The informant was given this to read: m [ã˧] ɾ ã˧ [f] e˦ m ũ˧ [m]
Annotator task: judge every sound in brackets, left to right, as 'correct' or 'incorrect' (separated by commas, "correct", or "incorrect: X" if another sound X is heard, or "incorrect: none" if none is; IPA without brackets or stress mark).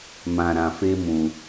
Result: correct, correct, incorrect: none